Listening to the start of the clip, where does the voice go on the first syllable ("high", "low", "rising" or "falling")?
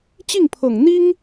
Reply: falling